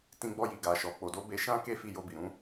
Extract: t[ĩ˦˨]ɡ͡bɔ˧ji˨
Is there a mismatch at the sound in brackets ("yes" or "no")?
yes